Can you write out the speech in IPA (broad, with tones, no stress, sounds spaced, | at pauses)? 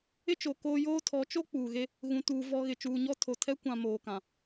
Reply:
ɪ˦ t͡ʃ o˨ k oː˦ j oː˦ tʰ ɔ˨˦ t͡ʃ o˦ k͡p uː˨ ɣ e˦ | ɣ ũ˨ t uː˨ v ɔ˨ ɣ ɪ˨ t͡ʃ uː˨ ɲ ɔ˦ tʰ o˨ tʰ ɛ˦ kʷ ã˨ m oː˨ k ã˨